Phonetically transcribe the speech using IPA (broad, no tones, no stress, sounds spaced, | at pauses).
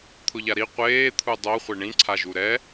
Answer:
t̪ʰ ʊ ʎ a ɾ i qʷ eː t̪ʰ u dˤ o χʷ e ɳ ĩ ǀʰ a ʒ u ɾ ɛ